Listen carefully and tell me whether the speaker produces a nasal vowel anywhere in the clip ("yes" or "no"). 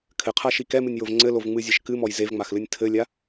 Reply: no